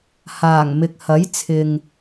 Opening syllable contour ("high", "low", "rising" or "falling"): low